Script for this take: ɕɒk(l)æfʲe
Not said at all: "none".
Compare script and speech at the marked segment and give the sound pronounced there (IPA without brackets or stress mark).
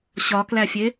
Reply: l